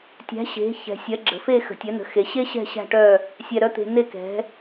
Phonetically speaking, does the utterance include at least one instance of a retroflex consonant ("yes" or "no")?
yes